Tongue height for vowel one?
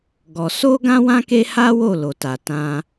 mid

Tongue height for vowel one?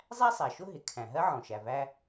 low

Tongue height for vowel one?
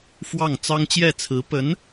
low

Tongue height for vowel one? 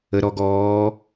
mid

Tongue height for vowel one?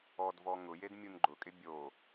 mid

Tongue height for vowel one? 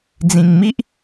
high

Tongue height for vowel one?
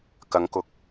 low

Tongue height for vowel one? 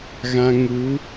low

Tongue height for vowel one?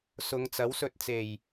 high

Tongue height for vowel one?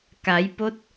low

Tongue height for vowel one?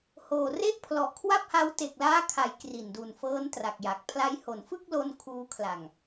mid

